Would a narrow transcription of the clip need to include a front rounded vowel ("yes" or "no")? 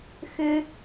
yes